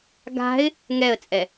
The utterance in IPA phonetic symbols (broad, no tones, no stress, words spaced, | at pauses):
ɡa̤ɪ̯ | ŋɛə̯t͡sʼɛ